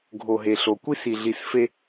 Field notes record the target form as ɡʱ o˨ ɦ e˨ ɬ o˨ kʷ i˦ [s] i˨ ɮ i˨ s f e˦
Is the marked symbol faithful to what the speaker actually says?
yes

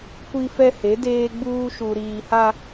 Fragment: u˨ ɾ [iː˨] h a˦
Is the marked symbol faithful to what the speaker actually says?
yes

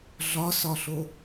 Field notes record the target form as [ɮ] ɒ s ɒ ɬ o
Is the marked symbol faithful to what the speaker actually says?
yes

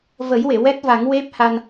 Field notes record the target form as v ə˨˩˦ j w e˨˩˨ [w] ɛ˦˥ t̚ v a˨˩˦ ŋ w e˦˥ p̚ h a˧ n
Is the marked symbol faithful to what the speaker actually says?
yes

